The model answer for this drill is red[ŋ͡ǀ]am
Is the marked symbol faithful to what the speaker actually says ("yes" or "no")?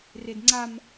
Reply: yes